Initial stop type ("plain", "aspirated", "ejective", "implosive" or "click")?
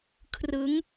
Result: aspirated